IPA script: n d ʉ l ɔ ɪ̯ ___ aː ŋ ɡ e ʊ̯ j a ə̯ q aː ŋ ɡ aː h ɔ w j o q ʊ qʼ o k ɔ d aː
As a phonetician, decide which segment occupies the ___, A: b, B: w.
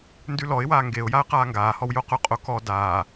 B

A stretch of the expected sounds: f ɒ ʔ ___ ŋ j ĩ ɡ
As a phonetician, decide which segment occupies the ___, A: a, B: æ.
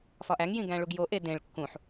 B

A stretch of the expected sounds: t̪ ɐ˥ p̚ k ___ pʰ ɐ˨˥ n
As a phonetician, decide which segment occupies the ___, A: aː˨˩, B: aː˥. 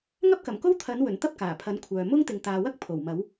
A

